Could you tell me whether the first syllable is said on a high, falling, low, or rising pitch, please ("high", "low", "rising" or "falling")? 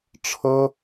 high